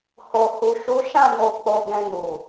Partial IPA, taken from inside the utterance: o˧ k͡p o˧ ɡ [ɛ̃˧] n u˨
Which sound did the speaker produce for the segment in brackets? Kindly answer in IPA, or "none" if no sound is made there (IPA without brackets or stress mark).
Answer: ɛ̃˧